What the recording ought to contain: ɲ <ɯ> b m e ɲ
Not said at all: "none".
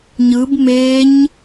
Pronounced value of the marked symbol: ɯ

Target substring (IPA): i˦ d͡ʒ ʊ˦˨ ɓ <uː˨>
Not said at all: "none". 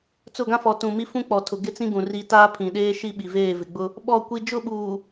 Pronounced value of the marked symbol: uː˨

